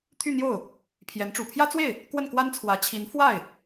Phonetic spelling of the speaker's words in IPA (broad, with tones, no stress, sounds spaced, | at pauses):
t̪ʰ y˥˧ n̪ j o˥˩ ʊ̯ | pʰ j ɛ˧˥ n ʈ͡ʂ u˨˩ pʰ j ä˥ t͡s w e˥˩ ɪ̯ | k w ə˥˩ n k w a˥ n t͡sʰ w ä˧˥ t͡ɕʰ i˧˥ n f w a˥˩ ɪ̯